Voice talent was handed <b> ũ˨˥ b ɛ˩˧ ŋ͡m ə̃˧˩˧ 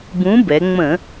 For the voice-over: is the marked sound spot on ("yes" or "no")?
yes